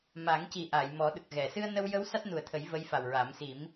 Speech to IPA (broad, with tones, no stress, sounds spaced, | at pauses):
m a˨˩˦ ŋ c i˨˩ ʔ a˨˩˨ j m ɔ˨˩˦ ɗ ə˨˩ k̚ ɣ ɛ˨˩˨ s ɨ˧ ə̯ n ə˧ w j ə˧˥ w s a˦˥ t̚ n u˨˩ ə̯ t̪ʰ ə˨˩˦ j v ə˧˥ j f a˨˩ w ɹ a˨˩˦ m s i˨˩˦ m